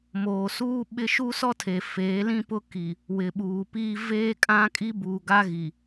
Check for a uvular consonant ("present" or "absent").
absent